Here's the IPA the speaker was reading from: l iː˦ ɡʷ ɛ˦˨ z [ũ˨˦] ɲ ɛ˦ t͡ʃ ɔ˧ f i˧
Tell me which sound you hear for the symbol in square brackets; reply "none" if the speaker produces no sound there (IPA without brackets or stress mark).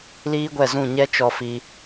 ũ˦˨